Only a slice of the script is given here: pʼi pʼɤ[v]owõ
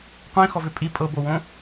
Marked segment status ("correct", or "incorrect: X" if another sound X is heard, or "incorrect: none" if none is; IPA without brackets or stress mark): incorrect: b